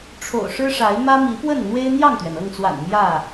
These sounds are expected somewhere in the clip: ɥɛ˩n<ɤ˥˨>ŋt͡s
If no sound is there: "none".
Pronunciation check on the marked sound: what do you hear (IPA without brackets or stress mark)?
ɤ˥˨